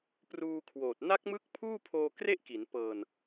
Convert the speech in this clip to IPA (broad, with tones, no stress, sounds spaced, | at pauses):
p r uː˧ kʰ w oː˨˩ t̚ n a˦˥ k̚ m ɯ˦˥ k̚ pʰ uː˥˩ pʰ oː˧ k r e˥˩ ʔ k i˩˦ n p ɤː˧ n